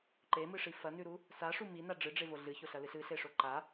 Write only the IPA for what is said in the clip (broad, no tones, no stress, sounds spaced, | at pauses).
ǃ e m ɨ ʂ i f ɐ n ʉ ɾ u | s a ʂ u m i n a ɖ͡ʐ ɨ ɖ͡ʐ e v o ɮ ɨ ç o ɬ ɐ l ɨ ɬ ɨ ɬ e ʂ o ǃ a